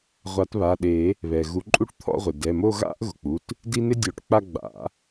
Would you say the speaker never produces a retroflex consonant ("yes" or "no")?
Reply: no